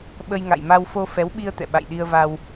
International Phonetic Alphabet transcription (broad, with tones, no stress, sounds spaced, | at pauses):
ɓ ə˧ j ŋ a̰˧˨ j m a˧ w f o˧ f ɛ˨˦ w ɓ i˧ ə̯ t̪ ɛ̰˧˨ ɓ a̰˧˨ j ɗ i˧ ə̯ v a˧ w